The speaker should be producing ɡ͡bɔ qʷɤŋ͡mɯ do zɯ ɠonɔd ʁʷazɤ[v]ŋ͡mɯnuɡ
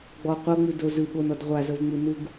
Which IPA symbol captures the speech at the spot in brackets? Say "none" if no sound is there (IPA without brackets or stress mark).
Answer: v